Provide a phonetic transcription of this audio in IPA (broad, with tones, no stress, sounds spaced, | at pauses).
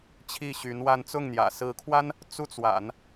t͡ɕʰ i˥˩ ɕ y˧˥ n w a˥˧ n t͡s ʊ˥˩ ŋ n̪ j ä̰˨˩ s ɹ̩˧˥ kʰ w a˥ n | t͡s u˥˩ t͡s w a̰˨˩˦ n